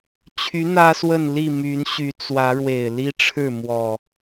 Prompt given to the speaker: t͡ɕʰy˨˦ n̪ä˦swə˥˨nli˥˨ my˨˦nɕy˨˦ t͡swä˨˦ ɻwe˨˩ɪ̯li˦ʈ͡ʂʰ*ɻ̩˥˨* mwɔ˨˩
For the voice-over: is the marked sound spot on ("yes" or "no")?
yes